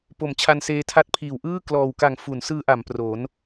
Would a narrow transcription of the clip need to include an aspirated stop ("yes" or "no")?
yes